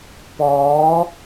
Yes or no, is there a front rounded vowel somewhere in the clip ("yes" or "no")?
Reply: no